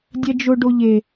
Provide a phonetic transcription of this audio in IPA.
dʲ ɛ d͡ʒ ʊ ɖ o ʎ e

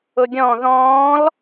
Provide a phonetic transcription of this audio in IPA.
ʊ ɡʲ ɔ̃ ð ɔ̃ː l

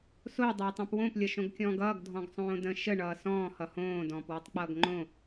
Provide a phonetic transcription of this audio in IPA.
s o dˤ oː tˤ õ p w õ p lʲ ʌ ʃ õ ɡ kʲ ɔ̃ː ɡ ʌː ɡ dʱ ɔ̃ ɡ sˤ õː d ə̃ ʃ ə ɳ ʌː s ɔ̃ː h ʌ h õː d ɔ̃ː p w ɒ tˤ k͡p ʌː ɡ ŋ͡ǃ õ

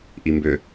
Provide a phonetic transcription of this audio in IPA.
ʔ i m b ʏ

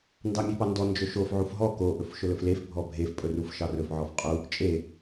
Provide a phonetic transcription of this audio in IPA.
n d ɑ mʲ e p ɑ n d ɔ n d͡ʒ ɵ ʃ o f ʕ u f ɦ ɔ k o ʔ ɵ f ʃ ɵ l ɵ f l e f bʱ ɔ bʱ e f pʼ ɵ r u f ʃ ɑ r ɵ f ʕ ɔ f qʼ u | t͡ʃʼ e

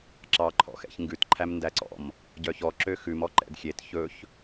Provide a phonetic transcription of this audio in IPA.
ǁ ɑ ǃʰ ɔ̰ x ɛ̰ ç ŋ ɡ ʉ t ǃʰ æ m n d æ ǀ ɔ̰ m | ɟ œ ç ɔ ǁ ø x ʉ m ɔ ǃ ɛ̰ d xʲ e t ç ɵ ç

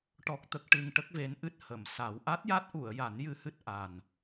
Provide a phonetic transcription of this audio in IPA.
ʈ ɔ˦˥ k̚ t̪ ə˦˥ k̚ ʈ ɨ˧ ŋ ʈ ə˦˥ k̚ v e˧˥ n ʔ ɨ˦˥ t̚ h ə˨˩˨ m s a˨˩˦ w ʔ a˦˥ t̚ j a˦˥ t̚ ʔ u˨˩˨ ə̯ j a˨˩˦ n j ɨ˧ h ɨ˦˥ t̚ ʔ a˨˩ n

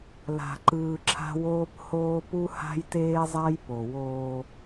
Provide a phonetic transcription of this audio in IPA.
l a̤˨ ǃ ɯː˨ ǁʰ a̤˦ w oː˦ p h oː˦ p u˦ h a̤˦ j t eː˦ zˤ a˦ j p o˨ w oː˦

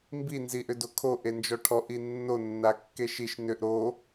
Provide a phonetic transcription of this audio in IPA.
m b i n z i ʔ ʏ d o kʰ o ʔ e n d͡ʒ ɔ ʈʰ ɔ ʔ i nː o nː a kː e ʃ i ʃ n ʏ ʔ ɾ o

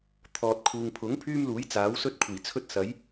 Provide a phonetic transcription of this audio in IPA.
t̪ʰ ɔː˨ t̚ kʰ uː˨ ŋ pʰ ʊ˨˥ ŋ pʰ yː˥ m l uː˨˥ j t͡s aː˨˥ w s ɵ˥ t̚ kʷʰ iː˨˩ t͡sʰ ɵ˥ t̚ s ɐ˨˥ j

